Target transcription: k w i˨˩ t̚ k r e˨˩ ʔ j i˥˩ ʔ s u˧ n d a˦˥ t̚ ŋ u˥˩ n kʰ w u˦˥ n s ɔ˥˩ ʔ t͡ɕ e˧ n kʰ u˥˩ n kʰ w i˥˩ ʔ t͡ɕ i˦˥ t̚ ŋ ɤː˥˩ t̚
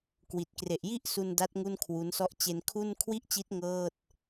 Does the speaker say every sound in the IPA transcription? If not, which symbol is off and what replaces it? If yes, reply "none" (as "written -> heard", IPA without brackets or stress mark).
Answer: none